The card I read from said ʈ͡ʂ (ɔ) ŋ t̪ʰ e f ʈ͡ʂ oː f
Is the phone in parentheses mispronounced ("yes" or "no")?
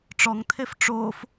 no